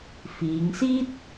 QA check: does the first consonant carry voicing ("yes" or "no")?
no